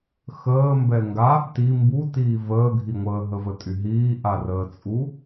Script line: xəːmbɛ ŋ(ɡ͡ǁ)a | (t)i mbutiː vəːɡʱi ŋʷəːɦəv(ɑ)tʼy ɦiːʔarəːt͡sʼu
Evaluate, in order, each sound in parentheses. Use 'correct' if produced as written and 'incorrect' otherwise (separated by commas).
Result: incorrect, correct, incorrect